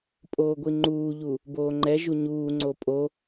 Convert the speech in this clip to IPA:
pʼ oː ɡʷ i ŋ͡ǃ uː ʎ u | b oː ŋ͡ǃ ɛ ʒ u ɲ uː ŋ͡ǀ o pʼ o

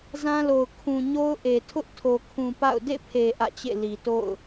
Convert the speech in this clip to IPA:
z ã˦ l o˨ ʊ̯ kʰ ũ˨ ɲ o˦ ʊ̯ ʔ e˨ tʰ ʊ˦ ʔ tʰ o˨ kʰ ũ˨ p a̰˦˨ ʊ̯ d ḛ˦˨ pʰ e˨ ʔ ä̰˦˨ t͡ɕ ḛ˦˨ l i˨ t o̰˦˨ ʊ̯

